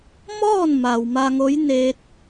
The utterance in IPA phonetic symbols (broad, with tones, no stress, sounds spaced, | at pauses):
m ɔː˥˨ n m a˩ w m a˧ ŋ o˧˥ j n eː˧ t̚